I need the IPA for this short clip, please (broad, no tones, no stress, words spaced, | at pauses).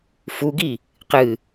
fuɡi | qɨ